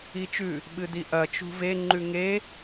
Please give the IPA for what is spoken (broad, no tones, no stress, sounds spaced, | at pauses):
i t͡ʃ ʉ | ɓ ɨ d i ʔ ɐ t͡ʃ ṳ v e ŋ͡ǃ ʉ ŋ e